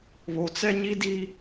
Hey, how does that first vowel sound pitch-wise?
low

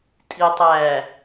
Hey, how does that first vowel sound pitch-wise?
low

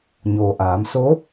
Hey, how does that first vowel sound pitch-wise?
low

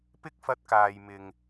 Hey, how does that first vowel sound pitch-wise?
high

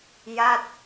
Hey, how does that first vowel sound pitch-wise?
falling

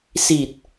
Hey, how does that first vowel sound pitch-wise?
low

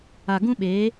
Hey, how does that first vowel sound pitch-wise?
low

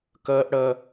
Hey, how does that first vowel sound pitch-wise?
high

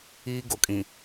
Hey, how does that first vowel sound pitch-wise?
high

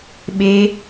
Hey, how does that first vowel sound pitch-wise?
high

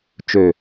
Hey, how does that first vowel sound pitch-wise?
low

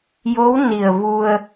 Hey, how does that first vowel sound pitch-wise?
rising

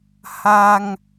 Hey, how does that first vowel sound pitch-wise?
high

